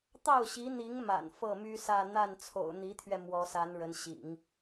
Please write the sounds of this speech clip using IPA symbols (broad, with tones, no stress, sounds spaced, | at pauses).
t̪ ɑ˥˩ ʊ̯ ɕ i˧˥ n̪ i˧˥ ŋ m a̰˨˩ n f ɤ˥˩ m y˥ s ä˥˧ n̪ a˥˩ n t͡sʰ o̰˨˩ ʊ̯ n̪ i˧˥ t̪ʰ ɥ ɛ˧ m w ɔ˧˥ s a˧˥ n ɻ ə˧˥ n ɕ ḭ˨˩˦ ŋ